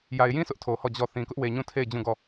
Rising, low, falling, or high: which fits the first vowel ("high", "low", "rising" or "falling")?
low